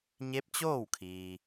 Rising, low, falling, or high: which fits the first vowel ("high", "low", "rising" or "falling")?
rising